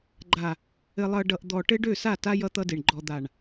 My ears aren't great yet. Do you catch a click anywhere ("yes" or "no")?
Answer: yes